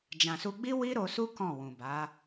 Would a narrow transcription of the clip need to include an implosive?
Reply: no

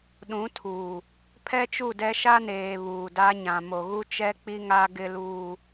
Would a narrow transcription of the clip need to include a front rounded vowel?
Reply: no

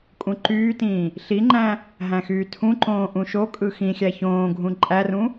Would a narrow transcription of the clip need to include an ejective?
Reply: yes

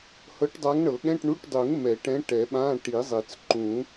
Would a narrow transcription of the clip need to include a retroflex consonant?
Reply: yes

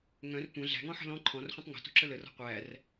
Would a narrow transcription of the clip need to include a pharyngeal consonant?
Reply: yes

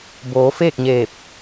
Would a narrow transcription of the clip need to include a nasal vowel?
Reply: no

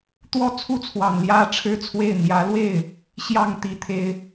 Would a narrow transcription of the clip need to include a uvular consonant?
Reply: no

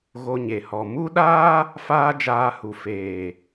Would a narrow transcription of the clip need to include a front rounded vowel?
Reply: no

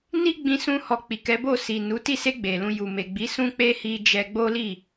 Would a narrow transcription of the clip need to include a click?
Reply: no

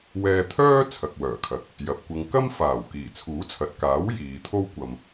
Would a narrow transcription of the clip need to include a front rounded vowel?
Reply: yes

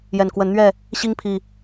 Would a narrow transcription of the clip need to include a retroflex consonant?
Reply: no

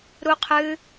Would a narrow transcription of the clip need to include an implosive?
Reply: no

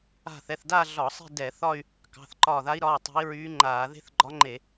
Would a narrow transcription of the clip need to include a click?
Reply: yes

